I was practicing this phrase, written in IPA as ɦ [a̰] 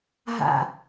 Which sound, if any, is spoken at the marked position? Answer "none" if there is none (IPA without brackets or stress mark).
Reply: a̰